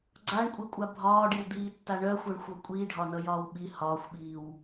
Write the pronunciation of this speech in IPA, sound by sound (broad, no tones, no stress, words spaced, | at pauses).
ɡ͡ǀaɳkʷʼikʷʼa bʱɒːɖiwd̪iːtːa ɳœxʷœɳxʷʌ kʷʼiːɖʱɒnʌjɒːw ɓi hɒːxʷɓiːw